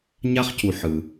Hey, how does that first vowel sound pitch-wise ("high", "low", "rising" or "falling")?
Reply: high